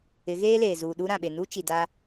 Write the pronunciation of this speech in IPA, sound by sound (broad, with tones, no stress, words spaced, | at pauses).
ɪ˨˦ɣeː˦leː˨ zuː˨ɗu˦ɾã˨ ɓe˨nu˦t͡ʃi˨ daː˦